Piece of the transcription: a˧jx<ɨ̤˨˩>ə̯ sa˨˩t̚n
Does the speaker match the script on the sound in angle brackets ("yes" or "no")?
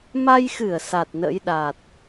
no